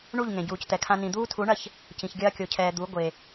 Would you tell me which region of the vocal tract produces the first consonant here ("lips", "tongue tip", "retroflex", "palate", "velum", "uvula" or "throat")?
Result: retroflex